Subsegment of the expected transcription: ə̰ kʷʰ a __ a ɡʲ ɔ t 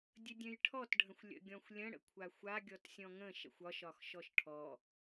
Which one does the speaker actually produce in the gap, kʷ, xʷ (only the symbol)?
xʷ